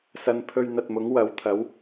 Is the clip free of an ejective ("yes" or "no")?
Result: yes